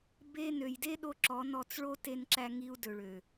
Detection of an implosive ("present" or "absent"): present